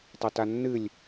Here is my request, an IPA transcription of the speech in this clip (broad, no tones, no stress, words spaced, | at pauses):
tˤotanːɨlʲ